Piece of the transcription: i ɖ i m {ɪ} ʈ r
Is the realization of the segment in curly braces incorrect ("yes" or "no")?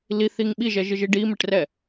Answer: no